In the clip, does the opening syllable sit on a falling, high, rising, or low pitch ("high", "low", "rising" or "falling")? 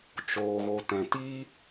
low